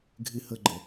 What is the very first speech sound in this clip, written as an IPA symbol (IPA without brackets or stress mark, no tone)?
ɡʱ